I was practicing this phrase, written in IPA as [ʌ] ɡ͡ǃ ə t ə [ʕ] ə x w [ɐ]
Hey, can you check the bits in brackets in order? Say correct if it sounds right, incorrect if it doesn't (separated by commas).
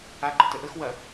incorrect, incorrect, correct